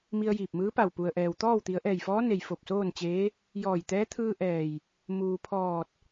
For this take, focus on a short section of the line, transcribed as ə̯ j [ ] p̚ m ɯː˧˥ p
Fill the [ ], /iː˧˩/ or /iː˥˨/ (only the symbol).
iː˧˩